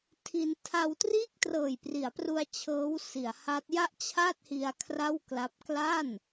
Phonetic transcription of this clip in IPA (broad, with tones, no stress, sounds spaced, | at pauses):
tʰ i˧ n tʰ a˧ w t r iː˥˩ k̚ t r ɤː˨˩ j p r i˩˦ a̯ p r u˧ a̯ t͡ɕʰ ɤː˦˥ w s i˩˦ a̯ h a˦˥ t̚ j a˥˩ ʔ t͡ɕʰ a˥˩ t̚ h i˧ a̯ kʰ r a˥˩ w k l a˦˥ p̚ k l a˥˩ n